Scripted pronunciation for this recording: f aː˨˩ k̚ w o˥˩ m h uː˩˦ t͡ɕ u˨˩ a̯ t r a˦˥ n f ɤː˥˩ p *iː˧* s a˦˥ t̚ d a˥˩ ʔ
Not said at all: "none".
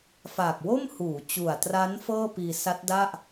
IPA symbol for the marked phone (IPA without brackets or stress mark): iː˧